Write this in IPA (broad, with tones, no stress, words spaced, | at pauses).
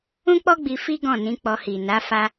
ũ˦k͡pɔ˦ɡ͡bi˧ fi˦ ɡɔ̃˦˨nĩ˨˦k͡pɔ˧ hi˨ na˨˦ fa˦